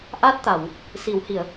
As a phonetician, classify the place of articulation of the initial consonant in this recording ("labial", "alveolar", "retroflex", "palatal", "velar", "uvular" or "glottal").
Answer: glottal